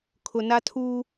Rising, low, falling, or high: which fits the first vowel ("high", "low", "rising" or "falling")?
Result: low